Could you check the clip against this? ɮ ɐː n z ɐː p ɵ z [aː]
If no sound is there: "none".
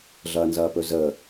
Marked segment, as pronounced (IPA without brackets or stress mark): əː